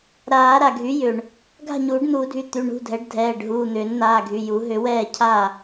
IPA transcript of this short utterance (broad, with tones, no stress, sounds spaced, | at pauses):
ɾ aː˨˩˦ ɾ a˩ ɡʱ y˩˥ j ʏ˩ ɳ | ɡʱ a̤˥˩ ɲ uː˨˩˦ ɖ n̪ uː˨˩˦ dʱ y˩˧˩ t̪ y˩˧˩ ɳ ṳ˩˧˩ dʱ ɛ˩˥ ɖ dʱ ɛː˩˧˩ ɖ ɦ uː˩˧˩ n̪ ʏː˨˩˦ n n̪ aː˩˧˩ ɡʱ y˩˧˩ j u˨˩˦ ɦ ʏ˨˩˦ w ɛː˥˩ cʰ a˥˩